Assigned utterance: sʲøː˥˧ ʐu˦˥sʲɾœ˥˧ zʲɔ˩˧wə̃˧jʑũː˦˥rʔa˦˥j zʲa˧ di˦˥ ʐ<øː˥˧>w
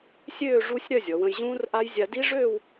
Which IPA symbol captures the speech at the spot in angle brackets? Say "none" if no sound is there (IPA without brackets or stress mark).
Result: øː˥˧